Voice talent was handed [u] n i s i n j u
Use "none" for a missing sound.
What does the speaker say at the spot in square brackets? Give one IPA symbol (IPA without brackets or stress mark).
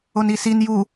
o